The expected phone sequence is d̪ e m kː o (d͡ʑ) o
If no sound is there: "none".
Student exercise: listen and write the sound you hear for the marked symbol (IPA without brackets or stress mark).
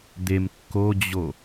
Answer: d͡ʑ